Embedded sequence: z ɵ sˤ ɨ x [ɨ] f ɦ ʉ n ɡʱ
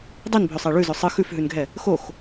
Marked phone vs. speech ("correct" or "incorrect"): incorrect